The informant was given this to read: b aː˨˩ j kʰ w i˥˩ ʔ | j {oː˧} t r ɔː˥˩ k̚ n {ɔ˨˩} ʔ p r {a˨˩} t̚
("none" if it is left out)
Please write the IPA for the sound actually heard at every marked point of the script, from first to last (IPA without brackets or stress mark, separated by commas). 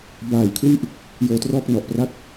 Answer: oː˧, ɔ˨˩, a˥˩